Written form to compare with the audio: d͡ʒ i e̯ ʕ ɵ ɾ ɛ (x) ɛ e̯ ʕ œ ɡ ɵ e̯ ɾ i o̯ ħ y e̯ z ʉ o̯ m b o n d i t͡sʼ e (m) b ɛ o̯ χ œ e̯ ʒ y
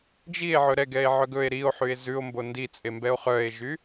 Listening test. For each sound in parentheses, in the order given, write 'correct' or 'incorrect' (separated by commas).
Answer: incorrect, correct